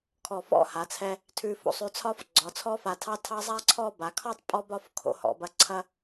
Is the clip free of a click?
no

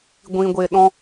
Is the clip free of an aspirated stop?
yes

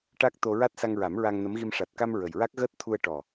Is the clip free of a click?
yes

